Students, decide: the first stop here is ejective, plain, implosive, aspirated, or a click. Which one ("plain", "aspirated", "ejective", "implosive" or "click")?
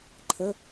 click